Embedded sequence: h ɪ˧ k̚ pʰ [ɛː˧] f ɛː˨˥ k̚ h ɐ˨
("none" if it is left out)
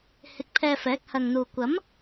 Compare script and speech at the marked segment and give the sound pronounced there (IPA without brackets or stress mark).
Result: ɛː˧